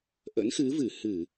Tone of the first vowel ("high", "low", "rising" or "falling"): rising